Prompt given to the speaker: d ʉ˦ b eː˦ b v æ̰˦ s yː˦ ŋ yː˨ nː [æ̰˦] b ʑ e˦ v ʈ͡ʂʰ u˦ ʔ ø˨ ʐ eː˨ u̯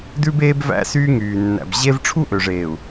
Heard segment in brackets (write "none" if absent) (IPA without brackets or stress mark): æ̰˨